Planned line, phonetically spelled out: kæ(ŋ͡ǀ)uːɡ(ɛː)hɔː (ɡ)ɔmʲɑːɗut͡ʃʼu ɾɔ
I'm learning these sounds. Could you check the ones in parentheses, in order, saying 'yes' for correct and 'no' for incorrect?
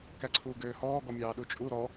no, no, yes

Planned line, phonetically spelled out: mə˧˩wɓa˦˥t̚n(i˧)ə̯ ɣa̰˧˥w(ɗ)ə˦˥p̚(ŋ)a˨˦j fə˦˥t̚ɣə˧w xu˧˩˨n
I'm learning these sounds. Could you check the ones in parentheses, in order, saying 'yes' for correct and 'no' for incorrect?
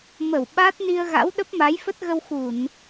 yes, yes, no

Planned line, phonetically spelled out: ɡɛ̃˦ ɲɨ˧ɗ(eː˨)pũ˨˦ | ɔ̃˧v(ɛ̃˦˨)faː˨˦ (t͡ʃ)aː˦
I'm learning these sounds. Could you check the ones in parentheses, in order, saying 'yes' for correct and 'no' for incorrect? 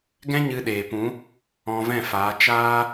yes, yes, yes

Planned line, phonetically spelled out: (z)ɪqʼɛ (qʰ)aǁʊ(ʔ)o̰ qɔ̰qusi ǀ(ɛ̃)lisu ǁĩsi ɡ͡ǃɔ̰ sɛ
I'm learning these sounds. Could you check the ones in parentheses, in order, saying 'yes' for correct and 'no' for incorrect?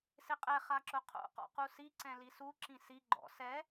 no, no, no, yes

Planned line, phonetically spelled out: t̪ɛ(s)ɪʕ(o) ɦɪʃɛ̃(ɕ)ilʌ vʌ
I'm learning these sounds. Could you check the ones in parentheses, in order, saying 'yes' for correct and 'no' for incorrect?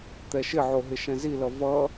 no, yes, no

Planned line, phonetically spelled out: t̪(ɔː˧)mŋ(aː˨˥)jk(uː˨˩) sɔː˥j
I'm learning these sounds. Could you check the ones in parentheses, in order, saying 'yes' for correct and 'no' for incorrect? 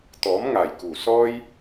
no, no, yes

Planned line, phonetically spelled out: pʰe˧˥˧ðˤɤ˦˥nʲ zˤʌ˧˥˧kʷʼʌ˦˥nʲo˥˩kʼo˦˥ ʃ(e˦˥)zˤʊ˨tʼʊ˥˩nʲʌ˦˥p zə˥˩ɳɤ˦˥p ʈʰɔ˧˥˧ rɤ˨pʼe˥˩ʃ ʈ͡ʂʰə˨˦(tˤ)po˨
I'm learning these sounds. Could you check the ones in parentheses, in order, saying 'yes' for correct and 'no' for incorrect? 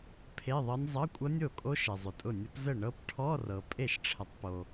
no, yes

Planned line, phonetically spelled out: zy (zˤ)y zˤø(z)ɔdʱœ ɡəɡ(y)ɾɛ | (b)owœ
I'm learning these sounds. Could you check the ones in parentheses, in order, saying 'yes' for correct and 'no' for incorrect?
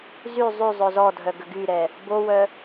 yes, yes, yes, yes

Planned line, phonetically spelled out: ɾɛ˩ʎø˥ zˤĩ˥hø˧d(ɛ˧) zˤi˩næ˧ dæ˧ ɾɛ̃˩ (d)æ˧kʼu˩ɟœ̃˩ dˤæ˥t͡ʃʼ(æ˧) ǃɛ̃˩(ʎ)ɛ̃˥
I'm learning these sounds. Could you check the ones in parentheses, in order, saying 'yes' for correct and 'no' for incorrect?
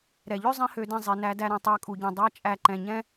no, no, yes, no

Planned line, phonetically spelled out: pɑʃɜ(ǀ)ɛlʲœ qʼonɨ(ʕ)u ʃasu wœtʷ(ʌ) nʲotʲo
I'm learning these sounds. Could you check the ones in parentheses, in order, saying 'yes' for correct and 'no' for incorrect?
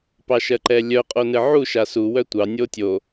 no, yes, no

